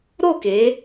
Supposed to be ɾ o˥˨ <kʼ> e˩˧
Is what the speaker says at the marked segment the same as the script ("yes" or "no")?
no